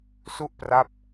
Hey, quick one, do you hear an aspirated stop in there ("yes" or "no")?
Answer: no